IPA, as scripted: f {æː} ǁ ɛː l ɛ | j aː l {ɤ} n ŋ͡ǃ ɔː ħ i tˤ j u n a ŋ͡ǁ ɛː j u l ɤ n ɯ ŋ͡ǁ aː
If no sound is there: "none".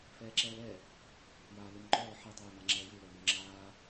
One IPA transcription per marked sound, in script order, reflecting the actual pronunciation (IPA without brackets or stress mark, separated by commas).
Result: ɛː, ɯ